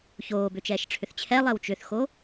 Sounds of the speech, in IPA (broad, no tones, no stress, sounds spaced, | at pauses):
ç oː b ʏ t͡ʃ ɛː ʃ ʈ͡ʂʰ ʏ θ t͡ɕʰ ɛ lˠ ɛ w t͡ʃ ʏ θ x o